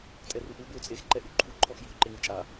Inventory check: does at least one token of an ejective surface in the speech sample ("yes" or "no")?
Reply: yes